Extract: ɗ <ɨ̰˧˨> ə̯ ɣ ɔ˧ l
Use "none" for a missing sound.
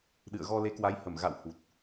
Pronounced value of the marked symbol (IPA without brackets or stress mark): ɨ̰˧˨